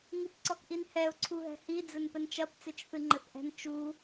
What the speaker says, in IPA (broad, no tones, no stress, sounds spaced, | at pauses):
ŋ i p ǀ ɔ k ʔ i n h ɛ ʊ̯ ǀʰ u ɦ ɛ̤ h i d͡z ɘ n p ɘ n t͡ʃ ɐ p t͡s e t͡ʃ θ ɨ ŋ͡ǃ ɘ θ ʔ ɛ̤ n t͡ʃ u